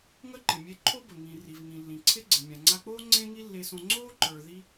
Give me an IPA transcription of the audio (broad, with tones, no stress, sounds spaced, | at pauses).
ŋ ə˥ ǃ ɪ˩ mʲ e˧ ǃʰ o˥ b ə˩ ŋ ĩ˩ r i˩ v ŋ ĩ˩ lː ĩ˩ ǀʰ ɪ˥ ɡ͡ǀ ɪ˩ mʲ ã˩ ŋ͡ǀ a˧ k͡p oː˥ ŋ͡ǀ ẽ˥ ŋ i˥ lː e˧ s õ˧ ŋ͡ǀ oː˥ ǃ ə˞˩ ð i˧